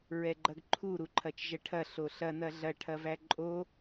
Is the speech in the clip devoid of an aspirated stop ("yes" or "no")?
no